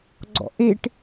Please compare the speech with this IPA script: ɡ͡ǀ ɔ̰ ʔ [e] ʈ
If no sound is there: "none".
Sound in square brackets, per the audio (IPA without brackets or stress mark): e